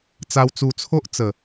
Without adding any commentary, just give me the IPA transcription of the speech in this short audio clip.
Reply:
t͡s a˧ w t͡s u˧ t͡sʰ o˦ ʔ t͡s ə˨˩

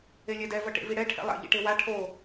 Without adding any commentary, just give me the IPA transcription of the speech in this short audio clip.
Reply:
e lʲ ɛ d ɛ v ʌ ʈ ḛ v i ɽ ɛ ʈʰ ɛ̰ lˠ a̰ ʎ ḭ ʈ e w a ʈʰ o

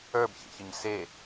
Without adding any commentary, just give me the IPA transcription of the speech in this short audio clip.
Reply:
ə˞ b ç ḛ ç ə ɲ s e

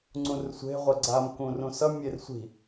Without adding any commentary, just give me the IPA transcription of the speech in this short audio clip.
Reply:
ŋ͡ǀ ũ r sʷ e̤ ʁʷ ɛ ɡ͡ǀ a m k ũ r ũ s ʌ mʲ e r sʷ i̤

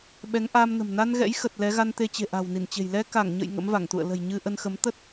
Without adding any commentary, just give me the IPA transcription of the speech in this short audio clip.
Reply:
ɓ ɛ˨˦ ŋ ʔ aː˧ m n ə̤˨˩ m n a˧ n ɣ ɛ̰˧˥ j x ə˨˩ t̚ l ɛ˨˦ ɣ a˧ n t̪ e˧ t͡ɕ e̤˨˩ ʔ a̤˨˩ w n i˧˩ n t͡ɕ e̤˨˩ j l ɛ˧ k a˧˩ ŋ ɲ ə̰˧˨ j ŋ ə̰˧˥ m v a˧˩ ŋ t̪ ṵ˧˨ ə̯ l ə̤˨˩ j ɲ ɨ˧ ʔ ə˧ n x ə˨˦ m t̪ ə˦˥ t̚

